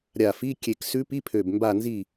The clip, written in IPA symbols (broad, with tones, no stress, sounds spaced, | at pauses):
ɾʲ a˧˩ f i˧˥˧ kʲ e˧˩ k s ʉ˧˥ p i˧˥˧ pʰ ø˧˩ b m b a˧˩ n z i˧˩